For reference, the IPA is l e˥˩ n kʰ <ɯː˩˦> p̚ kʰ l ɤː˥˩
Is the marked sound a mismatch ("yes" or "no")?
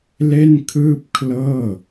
yes